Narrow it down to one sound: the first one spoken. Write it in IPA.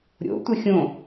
ɾʲ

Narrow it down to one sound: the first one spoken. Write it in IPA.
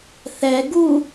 θ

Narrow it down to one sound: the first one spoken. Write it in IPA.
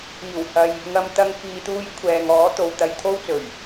iː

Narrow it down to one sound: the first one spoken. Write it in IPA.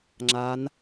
ŋ͡ǁ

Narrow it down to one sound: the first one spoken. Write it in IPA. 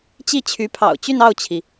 t͡ɕ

